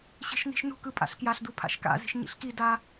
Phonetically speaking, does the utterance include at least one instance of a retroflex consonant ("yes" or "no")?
no